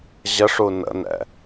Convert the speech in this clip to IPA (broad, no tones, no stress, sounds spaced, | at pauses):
ʑ ə ʂ u n ə̰ n ɛ̰